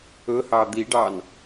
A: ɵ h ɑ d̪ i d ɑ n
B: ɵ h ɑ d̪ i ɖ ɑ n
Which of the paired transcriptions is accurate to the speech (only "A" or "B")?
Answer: B